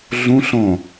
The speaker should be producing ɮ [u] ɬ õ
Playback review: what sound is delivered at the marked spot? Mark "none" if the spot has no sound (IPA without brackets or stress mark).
ũ